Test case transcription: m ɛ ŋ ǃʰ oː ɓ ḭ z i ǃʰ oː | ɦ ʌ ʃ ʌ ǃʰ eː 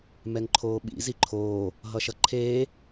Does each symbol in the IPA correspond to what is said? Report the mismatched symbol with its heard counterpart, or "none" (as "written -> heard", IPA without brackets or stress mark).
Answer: none